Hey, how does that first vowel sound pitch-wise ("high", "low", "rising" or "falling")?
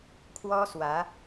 high